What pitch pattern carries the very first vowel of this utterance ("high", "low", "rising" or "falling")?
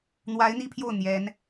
rising